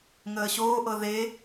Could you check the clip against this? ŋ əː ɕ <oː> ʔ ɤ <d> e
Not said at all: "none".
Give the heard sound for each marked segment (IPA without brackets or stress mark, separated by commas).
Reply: oː, ð